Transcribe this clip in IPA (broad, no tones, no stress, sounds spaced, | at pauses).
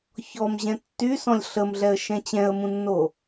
ç ɔ m ʑ ɛ̃ tː y s ɔ̃ lʲ ɬ ə m ɮ ɛ ə̯ ʃ ɛ̃ t͡ɕ ɛ̃ ə̯ m ũ nː o